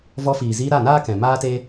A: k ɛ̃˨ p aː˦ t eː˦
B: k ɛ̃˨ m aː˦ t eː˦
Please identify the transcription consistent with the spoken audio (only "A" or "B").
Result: B